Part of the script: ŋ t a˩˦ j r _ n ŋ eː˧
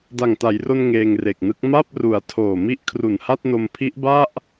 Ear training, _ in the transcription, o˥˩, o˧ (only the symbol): o˧